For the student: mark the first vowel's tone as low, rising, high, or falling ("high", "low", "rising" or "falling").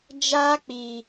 high